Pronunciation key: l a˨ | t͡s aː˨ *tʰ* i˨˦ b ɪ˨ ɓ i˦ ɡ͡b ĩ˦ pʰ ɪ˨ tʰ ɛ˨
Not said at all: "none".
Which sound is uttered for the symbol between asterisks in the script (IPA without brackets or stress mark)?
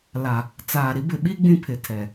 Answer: ɾ